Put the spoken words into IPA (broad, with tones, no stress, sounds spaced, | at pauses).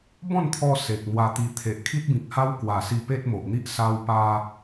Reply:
b ɔ̃˥˧ n t̪ʰ ɔ˧ s e˨ k̚ n̪ w a˧ t̪ i˧ t̪ʰ e˨ ʔ kʰ i˦ t̚ b ĩ˨ k̚ h a˦ w k w a˨˩ s i˧ p e˦ t̚ m o˨ ʔ n̪ i˦ ʔ s a˧ w p a˧